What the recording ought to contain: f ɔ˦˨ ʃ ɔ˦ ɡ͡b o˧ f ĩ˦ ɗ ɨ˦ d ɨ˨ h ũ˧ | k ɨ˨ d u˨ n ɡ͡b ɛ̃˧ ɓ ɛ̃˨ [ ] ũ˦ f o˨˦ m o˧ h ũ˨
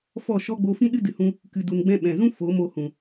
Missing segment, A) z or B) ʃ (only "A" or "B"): A